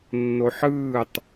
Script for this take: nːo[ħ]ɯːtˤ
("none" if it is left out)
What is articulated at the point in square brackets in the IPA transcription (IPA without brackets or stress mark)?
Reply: ħ